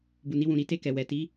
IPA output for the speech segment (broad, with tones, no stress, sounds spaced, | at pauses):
b u˨ n i˧ w ũ˨ ɾ i˨˦ t e˦˨ k ɛ˨ w ɛ˨ t i˨˦